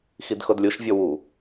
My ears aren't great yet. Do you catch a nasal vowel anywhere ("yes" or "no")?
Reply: no